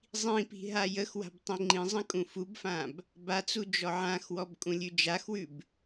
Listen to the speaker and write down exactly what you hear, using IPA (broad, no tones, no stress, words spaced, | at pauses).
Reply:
zˤĩpi̤ ɦajəxwa̤b tˤĩŋ͡ǃĩzˤə̃ kʼũfubfãb | bat͡su d͡ʒɔʕãxwɔb kʼũlʲʉd͡ʒaxwʉb